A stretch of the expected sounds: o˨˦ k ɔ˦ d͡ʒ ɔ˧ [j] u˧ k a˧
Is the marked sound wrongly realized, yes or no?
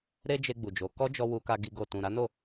yes